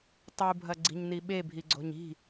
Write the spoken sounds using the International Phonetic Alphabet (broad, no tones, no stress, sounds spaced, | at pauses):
tˤ u bʱ ɐ ɡ͡ǀ i̤ ɲ n i ɓ e bʱ i ɡ͡ǀ o̤ ɲ i̤